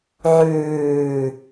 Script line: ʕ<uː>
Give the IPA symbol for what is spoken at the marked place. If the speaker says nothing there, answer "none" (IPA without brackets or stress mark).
ʉː